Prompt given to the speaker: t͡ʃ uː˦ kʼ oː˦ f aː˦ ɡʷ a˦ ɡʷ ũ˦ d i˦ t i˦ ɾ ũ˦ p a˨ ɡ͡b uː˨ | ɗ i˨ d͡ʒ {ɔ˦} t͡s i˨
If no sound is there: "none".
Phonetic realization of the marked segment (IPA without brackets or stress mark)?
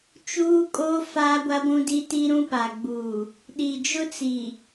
ʊ˦